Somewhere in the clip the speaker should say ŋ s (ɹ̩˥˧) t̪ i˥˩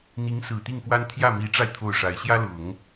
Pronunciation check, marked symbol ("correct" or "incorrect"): incorrect